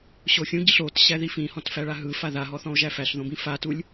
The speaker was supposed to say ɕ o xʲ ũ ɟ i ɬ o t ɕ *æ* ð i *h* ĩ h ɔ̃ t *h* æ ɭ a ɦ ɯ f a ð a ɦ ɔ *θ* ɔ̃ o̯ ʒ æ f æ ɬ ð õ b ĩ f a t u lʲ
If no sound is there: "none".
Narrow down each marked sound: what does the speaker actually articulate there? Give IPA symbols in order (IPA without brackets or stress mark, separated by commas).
æ, f, f, θ